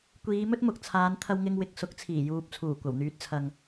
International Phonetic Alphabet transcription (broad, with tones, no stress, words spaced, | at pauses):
kʷiː˨˧mɵ˥t̚mʊ˨k̚ t͡sʰaː˨˧nt̪ʰɐ˧wŋɪ˧ŋ wɪ˨k̚sʊ˨˥k̚t͡sʰiː˨˩juː˨p̚ t͡sʰuː˨˩kʷɐ˨˩wn̪yː˨t̚t͡sʰɐ˨ŋ